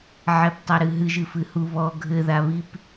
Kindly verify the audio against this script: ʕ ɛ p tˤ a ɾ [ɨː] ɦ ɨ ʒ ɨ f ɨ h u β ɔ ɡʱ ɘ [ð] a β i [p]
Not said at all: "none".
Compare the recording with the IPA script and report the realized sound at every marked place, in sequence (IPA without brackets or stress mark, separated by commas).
ɨ, ð, p